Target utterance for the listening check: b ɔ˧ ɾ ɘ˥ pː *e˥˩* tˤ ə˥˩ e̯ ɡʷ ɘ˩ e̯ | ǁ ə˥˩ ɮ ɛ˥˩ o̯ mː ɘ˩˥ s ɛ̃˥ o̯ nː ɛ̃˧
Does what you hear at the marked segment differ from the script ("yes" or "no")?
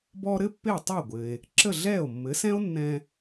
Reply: no